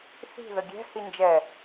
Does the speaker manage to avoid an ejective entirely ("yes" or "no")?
yes